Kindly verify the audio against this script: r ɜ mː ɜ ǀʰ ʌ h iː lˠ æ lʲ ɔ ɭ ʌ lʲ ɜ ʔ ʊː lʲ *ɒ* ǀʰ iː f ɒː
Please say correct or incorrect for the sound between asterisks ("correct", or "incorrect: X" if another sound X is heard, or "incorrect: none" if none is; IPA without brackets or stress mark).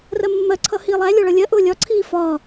correct